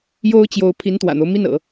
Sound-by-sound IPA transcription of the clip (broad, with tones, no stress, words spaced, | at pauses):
jo˥ʊ̯t͡ɕjo˧˥ʊ̯ pʰi˧˥nt̪wä̰˨˩n̪o˦ʊ̯ mi˥˩nɤ̰˨˩˦